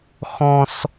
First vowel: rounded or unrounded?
rounded